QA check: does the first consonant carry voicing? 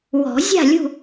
yes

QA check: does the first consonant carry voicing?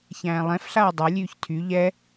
no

